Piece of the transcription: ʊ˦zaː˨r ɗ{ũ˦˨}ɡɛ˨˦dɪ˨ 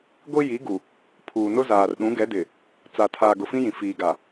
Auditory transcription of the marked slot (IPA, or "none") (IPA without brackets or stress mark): ũ˨˦